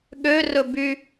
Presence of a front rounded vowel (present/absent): present